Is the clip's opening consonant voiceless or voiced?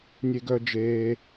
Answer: voiced